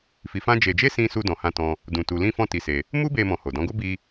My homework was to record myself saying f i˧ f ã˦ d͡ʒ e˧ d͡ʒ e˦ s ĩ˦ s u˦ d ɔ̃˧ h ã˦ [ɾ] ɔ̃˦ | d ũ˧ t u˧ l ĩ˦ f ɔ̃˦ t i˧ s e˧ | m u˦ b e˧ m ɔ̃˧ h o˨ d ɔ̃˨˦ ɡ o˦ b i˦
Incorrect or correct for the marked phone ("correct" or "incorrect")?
incorrect